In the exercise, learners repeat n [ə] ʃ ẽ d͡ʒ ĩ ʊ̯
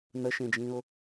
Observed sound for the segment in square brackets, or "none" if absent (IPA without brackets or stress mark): ə